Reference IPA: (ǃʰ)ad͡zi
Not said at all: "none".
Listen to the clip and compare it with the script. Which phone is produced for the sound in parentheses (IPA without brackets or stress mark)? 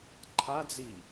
ǃʰ